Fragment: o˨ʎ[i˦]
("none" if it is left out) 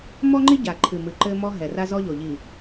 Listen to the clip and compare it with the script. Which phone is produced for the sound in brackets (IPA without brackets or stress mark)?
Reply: i˨